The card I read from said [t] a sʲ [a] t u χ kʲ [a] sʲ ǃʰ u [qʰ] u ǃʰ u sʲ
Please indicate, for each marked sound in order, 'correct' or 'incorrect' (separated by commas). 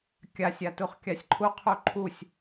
incorrect, correct, correct, correct